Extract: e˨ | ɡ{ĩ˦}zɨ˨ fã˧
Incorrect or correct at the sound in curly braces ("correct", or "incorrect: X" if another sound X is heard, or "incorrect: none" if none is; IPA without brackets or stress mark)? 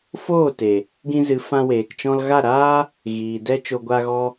incorrect: ĩ˧